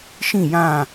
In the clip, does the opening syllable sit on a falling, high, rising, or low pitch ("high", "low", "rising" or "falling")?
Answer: falling